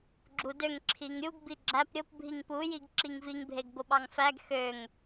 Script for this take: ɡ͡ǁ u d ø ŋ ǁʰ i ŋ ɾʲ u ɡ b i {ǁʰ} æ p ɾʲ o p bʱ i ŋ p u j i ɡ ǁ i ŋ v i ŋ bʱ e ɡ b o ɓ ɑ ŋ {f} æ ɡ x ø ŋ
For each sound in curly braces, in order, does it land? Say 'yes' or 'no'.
no, yes

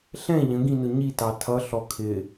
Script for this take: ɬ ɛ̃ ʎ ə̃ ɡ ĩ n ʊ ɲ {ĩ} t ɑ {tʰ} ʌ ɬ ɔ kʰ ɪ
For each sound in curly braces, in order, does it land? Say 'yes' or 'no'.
no, yes

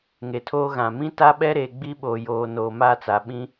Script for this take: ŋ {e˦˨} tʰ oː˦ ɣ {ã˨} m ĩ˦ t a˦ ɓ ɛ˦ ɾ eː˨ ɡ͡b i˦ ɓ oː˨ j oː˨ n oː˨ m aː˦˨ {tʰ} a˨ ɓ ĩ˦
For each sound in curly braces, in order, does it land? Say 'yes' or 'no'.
no, yes, no

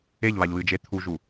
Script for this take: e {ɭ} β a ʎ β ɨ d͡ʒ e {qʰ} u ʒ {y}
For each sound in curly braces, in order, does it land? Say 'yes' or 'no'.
no, no, no

